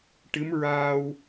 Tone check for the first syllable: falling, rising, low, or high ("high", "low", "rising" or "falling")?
rising